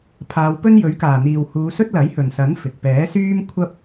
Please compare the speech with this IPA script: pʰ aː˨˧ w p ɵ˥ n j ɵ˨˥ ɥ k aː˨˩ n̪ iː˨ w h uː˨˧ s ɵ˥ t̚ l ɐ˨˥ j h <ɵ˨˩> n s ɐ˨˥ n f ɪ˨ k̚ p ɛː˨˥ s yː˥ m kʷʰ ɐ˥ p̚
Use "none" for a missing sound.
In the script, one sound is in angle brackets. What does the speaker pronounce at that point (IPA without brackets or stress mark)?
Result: ɵ˨˩